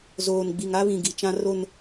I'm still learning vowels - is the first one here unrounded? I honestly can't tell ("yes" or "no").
no